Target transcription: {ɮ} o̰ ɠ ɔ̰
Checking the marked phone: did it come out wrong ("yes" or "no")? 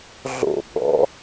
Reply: no